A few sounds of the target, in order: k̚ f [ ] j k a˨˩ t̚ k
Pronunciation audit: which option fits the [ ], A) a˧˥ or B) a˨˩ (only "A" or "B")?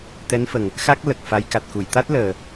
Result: A